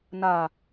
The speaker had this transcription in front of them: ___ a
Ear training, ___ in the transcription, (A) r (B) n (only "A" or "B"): B